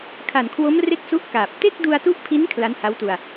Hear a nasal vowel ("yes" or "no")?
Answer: no